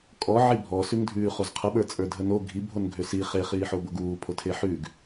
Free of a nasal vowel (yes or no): yes